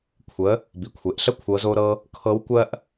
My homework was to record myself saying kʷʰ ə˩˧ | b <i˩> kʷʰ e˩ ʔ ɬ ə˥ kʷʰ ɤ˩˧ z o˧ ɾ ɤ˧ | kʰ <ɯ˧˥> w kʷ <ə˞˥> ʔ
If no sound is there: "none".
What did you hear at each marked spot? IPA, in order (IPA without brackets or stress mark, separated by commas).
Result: i˩, ɤ˧˥, ɜ˥